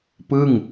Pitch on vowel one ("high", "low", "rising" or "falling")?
falling